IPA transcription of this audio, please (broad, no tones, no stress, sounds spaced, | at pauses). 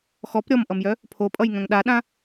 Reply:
x ɔ p ɾʲ ɔ m ʔ ʌ m j œ | pʰ o pʼ ʌ j ŋ œ̃ ŋ ɗ a ɗ ã